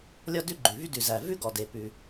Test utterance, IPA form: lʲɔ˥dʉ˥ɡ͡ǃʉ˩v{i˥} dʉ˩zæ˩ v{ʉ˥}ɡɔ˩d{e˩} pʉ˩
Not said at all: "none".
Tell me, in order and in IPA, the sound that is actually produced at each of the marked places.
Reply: y˥, ʉ˥, e˩

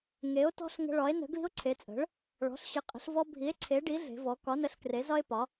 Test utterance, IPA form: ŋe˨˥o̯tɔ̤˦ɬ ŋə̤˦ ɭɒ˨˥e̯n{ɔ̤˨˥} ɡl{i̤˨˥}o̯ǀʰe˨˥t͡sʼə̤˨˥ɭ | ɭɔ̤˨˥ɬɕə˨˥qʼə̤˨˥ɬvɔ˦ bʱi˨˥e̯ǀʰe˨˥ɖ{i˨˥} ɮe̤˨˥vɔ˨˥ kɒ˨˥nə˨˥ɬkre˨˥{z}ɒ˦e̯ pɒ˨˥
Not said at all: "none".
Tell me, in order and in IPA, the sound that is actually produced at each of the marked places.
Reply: ə̤˨˥, i̤˦, i˨˥, z

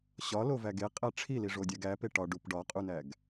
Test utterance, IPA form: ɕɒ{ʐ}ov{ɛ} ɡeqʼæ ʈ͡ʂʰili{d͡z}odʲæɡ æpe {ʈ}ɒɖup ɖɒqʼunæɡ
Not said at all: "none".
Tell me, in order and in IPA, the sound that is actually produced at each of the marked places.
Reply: l, æ, ʐ, ʈ

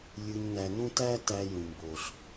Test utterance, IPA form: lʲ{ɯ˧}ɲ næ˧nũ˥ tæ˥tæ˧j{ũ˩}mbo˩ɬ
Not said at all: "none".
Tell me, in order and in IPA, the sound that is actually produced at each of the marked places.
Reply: ɯ˧, ũ˩

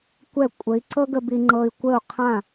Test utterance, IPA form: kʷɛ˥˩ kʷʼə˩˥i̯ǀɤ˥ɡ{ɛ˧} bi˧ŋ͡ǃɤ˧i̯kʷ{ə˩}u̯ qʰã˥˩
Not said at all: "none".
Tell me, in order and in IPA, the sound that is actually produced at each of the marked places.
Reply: ə˧, ə˥˩

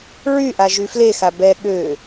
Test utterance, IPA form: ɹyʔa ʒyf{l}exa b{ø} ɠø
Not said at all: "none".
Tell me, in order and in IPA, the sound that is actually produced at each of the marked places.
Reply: l, ɛ

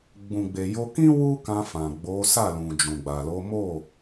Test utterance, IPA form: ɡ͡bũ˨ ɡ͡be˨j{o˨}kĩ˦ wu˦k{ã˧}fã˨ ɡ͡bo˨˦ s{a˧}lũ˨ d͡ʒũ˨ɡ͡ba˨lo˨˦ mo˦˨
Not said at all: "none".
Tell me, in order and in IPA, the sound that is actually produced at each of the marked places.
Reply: o˧, ã˧, a˦˨

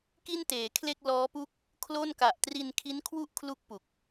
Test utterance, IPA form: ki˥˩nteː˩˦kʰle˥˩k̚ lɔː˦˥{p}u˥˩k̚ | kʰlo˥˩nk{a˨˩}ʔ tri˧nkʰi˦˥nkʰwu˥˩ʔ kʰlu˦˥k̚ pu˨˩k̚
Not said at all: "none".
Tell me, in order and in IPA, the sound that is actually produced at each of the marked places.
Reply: p, a˨˩

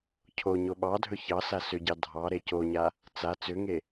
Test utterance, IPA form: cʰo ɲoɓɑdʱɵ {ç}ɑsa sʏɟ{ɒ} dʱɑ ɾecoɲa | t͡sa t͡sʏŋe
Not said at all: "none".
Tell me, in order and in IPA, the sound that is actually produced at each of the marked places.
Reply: ç, ɑ

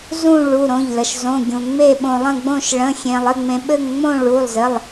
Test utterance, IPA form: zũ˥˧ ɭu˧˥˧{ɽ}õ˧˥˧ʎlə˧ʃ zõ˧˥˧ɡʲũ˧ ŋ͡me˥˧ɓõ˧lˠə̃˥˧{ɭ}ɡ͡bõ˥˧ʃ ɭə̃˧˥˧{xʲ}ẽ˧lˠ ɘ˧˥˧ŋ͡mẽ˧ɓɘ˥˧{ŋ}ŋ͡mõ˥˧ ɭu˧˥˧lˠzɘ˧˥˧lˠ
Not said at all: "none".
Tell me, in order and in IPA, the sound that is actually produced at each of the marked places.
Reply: ɾ, none, xʲ, ŋ

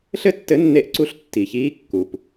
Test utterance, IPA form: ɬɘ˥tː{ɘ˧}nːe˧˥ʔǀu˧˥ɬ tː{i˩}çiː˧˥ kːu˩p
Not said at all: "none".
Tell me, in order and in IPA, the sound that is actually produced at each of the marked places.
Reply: ɘ˧˥, i˩

